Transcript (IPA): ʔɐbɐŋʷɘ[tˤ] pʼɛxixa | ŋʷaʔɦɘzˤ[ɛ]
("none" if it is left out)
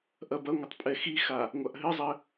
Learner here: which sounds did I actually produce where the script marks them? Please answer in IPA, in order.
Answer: tˤ, ɘ

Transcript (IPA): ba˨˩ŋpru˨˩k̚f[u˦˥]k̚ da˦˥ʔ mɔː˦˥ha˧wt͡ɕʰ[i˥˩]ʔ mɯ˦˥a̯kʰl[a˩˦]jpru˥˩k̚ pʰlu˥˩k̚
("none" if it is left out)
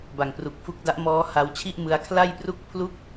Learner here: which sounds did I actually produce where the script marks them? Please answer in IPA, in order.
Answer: u˦˥, i˥˩, a˥˩

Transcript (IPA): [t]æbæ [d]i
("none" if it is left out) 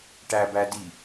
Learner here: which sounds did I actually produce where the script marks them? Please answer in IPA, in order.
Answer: ʈ, d

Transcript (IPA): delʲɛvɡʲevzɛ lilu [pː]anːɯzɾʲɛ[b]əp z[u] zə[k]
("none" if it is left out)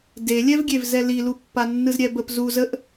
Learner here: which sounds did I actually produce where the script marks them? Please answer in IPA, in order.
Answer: pː, b, u, ʔ

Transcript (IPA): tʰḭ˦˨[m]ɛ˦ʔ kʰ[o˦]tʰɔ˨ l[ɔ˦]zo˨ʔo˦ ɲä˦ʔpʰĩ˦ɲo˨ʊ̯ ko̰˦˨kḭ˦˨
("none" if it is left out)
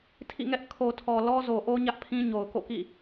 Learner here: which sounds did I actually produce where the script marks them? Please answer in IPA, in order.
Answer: ŋ, o˨, ɔ˦

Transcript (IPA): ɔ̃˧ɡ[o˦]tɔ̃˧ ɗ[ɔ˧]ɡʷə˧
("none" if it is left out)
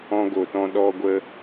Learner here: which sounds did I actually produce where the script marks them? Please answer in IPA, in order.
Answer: o˨, ɔ˧

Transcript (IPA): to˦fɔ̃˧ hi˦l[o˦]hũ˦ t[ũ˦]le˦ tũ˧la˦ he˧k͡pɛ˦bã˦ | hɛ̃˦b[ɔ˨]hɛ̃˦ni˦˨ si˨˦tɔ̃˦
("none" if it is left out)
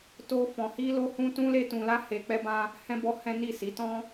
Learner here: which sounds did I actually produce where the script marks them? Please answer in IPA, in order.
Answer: o˦, ũ˦, ɔ˦

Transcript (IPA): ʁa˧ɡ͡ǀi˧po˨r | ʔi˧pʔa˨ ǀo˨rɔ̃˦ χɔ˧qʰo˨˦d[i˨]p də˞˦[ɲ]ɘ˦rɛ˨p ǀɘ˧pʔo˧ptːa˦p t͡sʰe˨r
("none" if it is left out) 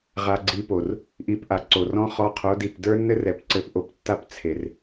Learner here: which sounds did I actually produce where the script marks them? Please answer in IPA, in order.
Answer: i˨, nː

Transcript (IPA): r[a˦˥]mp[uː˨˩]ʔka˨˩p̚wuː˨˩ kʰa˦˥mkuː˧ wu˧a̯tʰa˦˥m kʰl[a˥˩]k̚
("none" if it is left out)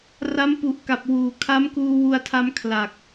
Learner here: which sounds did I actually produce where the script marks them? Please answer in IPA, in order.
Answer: a˦˥, u˨˩, a˨˩

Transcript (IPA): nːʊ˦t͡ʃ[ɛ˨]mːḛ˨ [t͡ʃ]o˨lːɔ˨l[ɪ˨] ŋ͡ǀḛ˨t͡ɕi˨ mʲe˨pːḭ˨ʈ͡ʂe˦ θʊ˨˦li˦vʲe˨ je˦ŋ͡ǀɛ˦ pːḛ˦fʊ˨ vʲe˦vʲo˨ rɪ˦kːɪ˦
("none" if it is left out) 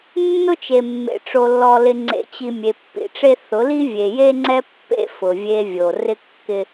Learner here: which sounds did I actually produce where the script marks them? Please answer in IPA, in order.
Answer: e˨, ʈ͡ʂ, ɪ˨

